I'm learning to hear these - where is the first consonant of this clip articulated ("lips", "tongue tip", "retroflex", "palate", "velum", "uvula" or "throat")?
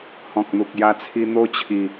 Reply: throat